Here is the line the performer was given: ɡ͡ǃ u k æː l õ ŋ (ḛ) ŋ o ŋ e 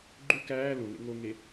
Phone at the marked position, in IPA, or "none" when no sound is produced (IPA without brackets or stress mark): ḛ